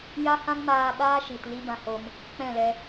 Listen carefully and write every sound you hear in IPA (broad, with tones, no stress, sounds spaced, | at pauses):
j a˦ h ã˦ ŋ m aː˧ ɓ aː˦ ʃ i˨ t l i˦ b ã˧ h o˧ m | k͡p ɛ̃˦˨ l ɛ˧